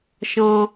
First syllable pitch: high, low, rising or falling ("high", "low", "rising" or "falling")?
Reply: high